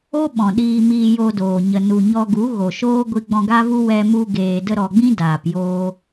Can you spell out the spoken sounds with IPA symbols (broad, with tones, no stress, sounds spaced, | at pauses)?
o˦ ɓ ɔ̃˨ ɗ iː˧ m iː˧ j o˧ d oː˨ ɲ ə˨ n u˨ ɲ ɔ˧ ɡ u˨˦ ɣ o˨ ʃ oː˦ ɡʷ i˧ ɡ͡b ɔ̃˧ ɡ a˦ v u˦ w ɛ˧ m u˧ ɡ eː˨ d ə˧ ɾ ɔ˨ ɡ͡b ĩ˦ d aː˨ p j oː˧